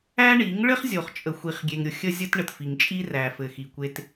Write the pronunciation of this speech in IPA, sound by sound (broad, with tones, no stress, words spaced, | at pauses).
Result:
æ˦ɳi˨˦ŋ ɭɘ˦χzʲo˨χ t͡ʃʼə˨xʷi˨χɡʲe˨ŋɾʲʊ˨ xʲə˦zʲə˦t ɳə˨tfi˨ŋt͡ʃʼi˦ræ˨ fɘ˨xi˨ kʷe˦t